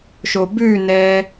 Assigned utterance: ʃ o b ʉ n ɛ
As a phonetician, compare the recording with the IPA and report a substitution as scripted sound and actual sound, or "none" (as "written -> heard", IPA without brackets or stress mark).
none